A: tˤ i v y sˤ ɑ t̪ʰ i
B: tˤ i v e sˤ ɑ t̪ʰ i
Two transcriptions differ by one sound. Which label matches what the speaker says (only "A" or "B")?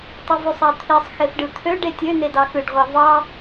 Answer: A